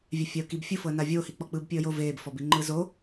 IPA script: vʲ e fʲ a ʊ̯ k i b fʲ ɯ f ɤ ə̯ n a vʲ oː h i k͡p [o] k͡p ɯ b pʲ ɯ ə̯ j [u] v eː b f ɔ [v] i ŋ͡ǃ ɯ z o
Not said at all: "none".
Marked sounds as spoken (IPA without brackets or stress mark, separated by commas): ɔ, o, b